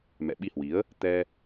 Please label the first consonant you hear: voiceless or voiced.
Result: voiced